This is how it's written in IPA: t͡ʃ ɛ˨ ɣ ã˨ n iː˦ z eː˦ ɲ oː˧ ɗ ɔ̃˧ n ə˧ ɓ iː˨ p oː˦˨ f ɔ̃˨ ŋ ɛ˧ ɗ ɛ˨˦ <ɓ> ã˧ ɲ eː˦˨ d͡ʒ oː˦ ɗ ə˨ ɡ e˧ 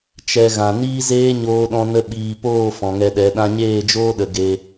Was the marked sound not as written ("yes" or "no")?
yes